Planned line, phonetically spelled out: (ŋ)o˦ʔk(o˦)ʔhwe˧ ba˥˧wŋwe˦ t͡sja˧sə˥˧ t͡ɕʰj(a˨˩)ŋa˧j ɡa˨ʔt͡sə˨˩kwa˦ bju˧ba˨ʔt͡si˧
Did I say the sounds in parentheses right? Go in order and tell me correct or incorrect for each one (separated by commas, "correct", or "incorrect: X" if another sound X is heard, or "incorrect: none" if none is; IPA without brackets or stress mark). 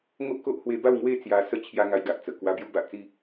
correct, correct, incorrect: a˦